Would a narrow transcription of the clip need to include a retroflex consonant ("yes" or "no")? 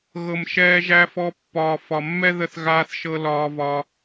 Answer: no